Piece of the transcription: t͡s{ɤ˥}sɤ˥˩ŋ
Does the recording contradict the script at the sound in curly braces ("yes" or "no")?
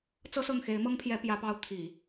no